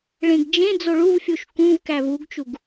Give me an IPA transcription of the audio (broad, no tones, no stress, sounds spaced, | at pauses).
ɭ ẽ ɡ d͡ʒ ẽ d͡z o ɭ u v fʲ u ʃ k ũ v k æ v u ɡ t͡ʃ u ɡ